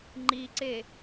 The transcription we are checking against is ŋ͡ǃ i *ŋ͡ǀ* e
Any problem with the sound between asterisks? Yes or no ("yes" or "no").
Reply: yes